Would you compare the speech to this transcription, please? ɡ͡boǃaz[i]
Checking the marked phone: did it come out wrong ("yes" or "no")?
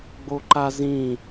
yes